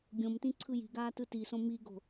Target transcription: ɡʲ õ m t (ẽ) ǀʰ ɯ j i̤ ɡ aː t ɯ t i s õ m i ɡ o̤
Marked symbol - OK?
no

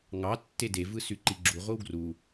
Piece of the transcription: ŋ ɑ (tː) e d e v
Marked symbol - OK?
yes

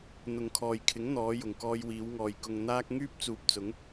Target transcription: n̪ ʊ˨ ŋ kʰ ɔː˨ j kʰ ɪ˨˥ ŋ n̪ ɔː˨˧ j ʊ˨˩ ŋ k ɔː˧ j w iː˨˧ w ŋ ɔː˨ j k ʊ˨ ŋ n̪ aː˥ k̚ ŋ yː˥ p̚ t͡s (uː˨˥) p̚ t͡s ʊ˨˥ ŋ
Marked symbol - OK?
no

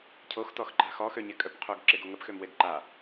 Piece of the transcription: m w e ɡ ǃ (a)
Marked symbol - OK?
yes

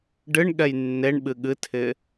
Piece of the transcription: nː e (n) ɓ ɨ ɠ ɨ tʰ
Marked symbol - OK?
no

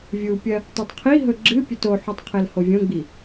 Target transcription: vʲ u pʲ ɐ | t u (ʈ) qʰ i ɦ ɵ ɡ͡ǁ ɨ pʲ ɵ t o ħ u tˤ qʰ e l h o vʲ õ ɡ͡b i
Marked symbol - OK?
no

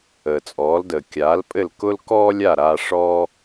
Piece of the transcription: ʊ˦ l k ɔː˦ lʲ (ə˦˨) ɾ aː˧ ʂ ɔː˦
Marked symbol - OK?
no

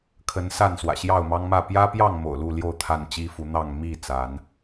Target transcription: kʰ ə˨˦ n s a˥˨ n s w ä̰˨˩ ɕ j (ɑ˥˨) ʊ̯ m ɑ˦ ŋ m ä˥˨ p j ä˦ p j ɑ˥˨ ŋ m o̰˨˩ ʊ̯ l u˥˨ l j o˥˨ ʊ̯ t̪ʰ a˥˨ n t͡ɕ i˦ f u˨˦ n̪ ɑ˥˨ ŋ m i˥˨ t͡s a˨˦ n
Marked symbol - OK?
yes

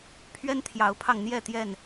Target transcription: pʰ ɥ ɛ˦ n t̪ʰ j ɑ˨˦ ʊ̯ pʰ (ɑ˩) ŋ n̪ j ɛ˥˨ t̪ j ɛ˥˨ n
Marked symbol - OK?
no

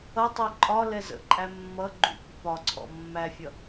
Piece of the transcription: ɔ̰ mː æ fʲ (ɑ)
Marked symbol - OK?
no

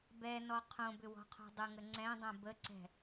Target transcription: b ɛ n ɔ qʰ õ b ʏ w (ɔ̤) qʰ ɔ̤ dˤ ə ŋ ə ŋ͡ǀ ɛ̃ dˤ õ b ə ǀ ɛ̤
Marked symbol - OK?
yes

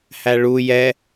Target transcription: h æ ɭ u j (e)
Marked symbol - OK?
no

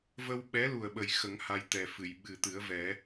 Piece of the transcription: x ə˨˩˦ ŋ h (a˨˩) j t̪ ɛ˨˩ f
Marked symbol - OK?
no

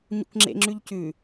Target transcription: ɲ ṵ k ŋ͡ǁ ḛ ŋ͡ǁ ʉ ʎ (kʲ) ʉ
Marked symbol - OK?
no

